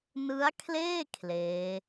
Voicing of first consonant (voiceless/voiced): voiced